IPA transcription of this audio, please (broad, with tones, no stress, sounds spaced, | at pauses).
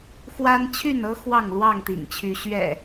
x w a˦ n t͡ɕʰ y˥˨ n ɤ˦ x w ɑ˥˨ ŋ l w ɑ˥˨ ŋ t̪ ḭ˨˩ ŋ t͡ɕʰ y˨˦ ɕ ɥ ɛ̰˨˩